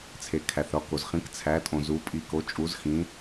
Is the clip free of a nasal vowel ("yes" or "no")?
no